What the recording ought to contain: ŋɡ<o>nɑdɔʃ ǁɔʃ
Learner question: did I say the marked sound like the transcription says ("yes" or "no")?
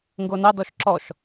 yes